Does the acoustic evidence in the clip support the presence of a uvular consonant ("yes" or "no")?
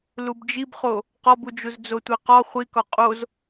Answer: yes